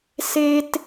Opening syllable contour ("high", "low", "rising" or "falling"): high